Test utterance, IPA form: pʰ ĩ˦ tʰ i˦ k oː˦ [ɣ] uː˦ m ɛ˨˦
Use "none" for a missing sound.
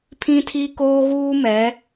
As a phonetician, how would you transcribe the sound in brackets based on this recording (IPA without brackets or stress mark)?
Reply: ɣ